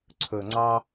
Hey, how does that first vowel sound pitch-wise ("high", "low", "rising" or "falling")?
low